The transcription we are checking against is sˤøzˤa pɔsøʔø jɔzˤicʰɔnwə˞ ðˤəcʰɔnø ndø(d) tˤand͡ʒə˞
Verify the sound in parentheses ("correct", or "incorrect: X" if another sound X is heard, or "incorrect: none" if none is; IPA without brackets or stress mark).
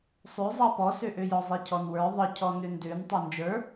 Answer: incorrect: n